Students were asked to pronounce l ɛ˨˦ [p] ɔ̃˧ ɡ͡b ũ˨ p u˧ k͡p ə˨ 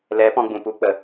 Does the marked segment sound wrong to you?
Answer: no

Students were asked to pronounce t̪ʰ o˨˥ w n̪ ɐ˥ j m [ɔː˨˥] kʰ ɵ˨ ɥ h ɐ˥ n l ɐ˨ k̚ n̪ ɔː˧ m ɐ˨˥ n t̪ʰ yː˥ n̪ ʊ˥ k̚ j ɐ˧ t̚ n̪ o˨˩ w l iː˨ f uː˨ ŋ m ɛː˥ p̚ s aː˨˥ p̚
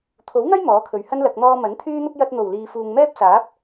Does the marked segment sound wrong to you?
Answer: no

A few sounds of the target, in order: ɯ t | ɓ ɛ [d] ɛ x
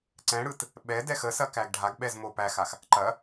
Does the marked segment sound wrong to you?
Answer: no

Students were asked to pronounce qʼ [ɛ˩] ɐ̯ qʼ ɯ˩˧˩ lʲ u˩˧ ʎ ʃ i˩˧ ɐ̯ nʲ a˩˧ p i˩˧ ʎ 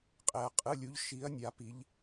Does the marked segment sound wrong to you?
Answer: no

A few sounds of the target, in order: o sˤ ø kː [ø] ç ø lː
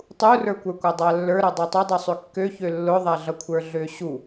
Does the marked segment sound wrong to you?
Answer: no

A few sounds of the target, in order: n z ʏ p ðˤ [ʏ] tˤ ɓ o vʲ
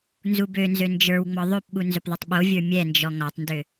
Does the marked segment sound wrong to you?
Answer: no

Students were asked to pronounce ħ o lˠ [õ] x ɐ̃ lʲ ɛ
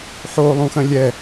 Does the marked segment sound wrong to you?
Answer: yes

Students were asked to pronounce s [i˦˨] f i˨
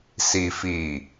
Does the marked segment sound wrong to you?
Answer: yes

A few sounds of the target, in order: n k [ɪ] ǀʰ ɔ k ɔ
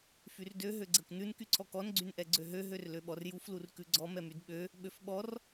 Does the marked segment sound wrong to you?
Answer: yes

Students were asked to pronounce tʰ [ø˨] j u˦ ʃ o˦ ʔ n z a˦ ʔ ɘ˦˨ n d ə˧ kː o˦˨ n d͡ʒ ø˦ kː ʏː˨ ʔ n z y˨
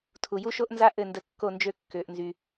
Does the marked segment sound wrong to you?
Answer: yes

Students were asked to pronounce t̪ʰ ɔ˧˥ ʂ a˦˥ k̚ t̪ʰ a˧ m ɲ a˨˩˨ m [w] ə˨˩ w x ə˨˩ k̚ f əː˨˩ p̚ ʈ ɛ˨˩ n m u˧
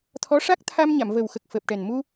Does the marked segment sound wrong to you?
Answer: yes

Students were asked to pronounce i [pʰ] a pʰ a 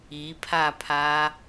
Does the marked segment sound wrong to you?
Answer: no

